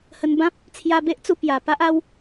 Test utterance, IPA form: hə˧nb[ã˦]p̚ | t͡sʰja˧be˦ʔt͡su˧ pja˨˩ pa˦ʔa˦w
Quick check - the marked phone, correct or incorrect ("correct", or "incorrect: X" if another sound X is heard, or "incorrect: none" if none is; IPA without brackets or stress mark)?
correct